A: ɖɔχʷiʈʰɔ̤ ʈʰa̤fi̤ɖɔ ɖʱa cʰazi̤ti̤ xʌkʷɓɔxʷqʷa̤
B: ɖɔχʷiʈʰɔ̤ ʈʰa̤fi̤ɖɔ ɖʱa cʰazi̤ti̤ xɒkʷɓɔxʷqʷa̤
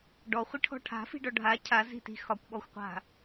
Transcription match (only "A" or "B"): B